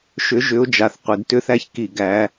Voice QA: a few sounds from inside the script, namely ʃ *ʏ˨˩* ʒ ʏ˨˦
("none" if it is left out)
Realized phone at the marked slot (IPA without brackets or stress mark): ʏ˨˦